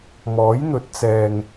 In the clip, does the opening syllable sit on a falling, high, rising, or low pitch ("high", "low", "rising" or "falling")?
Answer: rising